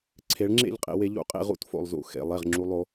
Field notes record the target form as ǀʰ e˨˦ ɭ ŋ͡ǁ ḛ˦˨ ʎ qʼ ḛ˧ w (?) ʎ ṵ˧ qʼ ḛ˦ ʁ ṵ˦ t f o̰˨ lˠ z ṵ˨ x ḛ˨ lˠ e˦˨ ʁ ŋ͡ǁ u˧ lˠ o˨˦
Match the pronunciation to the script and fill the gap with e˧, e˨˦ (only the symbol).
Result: e˧